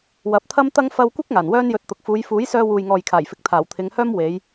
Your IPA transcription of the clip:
w ɐ˨˥ p̚ t̪ʰ ɐ˥ m t̪ ɐ˥ ŋ f ɐ˧ w kʷ ɪ˥ k̚ ŋ aː˨˩ n w œː˥ n j ɵ˧ t̚ t̪ ʊ˨ k̚ f uː˨˧ j f uː˨˥ j s œː˧ w uː˨ j ŋ ɔː˨ j kʰ aː˨˩ j f ɪ˨˥ k̚ t̪ʰ aː˨˩ w t̪ʰ ɪ˨˧ ŋ h œː˥ m w e˨˧ j

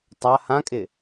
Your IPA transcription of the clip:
tˤ a h ã kʼ ɪ

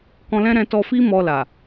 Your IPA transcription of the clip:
k ɔ̃˧ l ɛ̃˦ ɾ ɛ̃˧ t ɔ˧ f i˦ m ɔ˧ l a˨

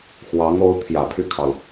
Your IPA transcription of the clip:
x w ɑ˧˥ ŋ o˧˥ ʊ̯ t̪ʰ j ä˨˩ pʰ y˥˩ kʰ ɑ˩ ʊ̯

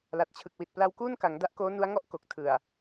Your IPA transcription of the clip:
l a˨˩ t̚ t͡ɕʰ ɯ˨˩ k̚ w i˨˩ t̚ p l a˧ w k uː˥˩ n k a˩˦ ŋ d a˦˥ ʔ k oː˦˥ n u˦˥ a̯ ŋ ɔ˥˩ ʔ k o˨˩ k̚ tʰ ɯ˨˩ a̯

